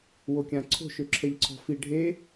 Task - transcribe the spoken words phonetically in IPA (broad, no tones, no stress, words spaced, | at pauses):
wokʲãǀʰo̤ʃ øǁʰɛʎǀʰɔ̤fi ɖʱe